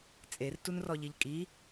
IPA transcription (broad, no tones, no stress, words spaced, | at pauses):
t͡sʼertunrɔʎiʎ kʼi